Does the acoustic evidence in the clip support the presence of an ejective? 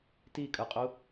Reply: yes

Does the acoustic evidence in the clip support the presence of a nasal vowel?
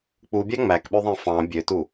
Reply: yes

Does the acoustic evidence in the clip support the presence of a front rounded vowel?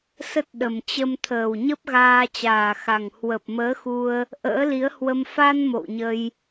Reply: no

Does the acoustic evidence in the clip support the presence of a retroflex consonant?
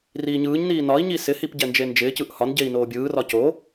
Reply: no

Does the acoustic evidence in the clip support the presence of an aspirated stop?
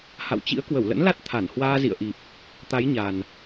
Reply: yes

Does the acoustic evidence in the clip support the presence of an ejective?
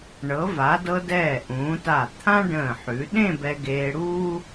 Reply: no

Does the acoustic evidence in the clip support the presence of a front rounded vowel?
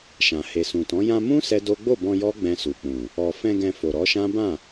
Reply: no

